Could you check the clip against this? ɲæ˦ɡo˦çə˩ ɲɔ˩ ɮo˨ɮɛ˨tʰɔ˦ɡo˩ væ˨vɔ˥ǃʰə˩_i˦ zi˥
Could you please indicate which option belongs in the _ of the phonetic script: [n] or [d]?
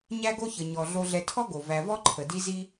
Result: d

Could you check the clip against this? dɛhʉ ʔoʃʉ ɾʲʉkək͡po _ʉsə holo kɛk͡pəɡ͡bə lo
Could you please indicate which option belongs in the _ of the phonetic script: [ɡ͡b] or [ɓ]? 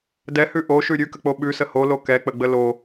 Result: ɓ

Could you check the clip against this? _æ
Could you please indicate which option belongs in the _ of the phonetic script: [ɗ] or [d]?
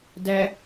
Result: d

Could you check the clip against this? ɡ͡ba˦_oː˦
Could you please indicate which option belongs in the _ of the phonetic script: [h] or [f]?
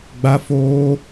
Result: f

